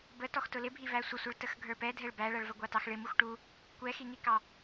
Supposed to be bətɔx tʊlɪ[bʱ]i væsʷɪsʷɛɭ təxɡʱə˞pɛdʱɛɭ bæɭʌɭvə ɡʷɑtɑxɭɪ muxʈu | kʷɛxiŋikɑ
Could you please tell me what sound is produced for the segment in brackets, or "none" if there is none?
bʱ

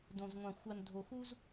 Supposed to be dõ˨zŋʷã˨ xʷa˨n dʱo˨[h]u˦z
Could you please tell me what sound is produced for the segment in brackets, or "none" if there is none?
x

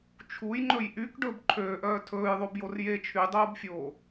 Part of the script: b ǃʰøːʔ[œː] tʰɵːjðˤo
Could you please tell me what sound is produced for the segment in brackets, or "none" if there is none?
œː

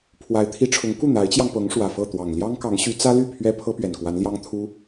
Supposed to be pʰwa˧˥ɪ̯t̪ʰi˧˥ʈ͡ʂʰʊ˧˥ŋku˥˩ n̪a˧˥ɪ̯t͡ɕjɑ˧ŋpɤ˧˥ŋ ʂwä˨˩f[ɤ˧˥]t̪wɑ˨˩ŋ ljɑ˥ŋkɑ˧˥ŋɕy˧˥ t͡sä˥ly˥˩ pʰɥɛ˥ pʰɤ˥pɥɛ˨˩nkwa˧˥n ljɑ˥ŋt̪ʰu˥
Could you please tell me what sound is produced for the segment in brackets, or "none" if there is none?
ɤ˥˩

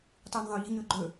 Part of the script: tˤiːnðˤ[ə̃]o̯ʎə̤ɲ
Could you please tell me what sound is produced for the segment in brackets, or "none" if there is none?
ə̃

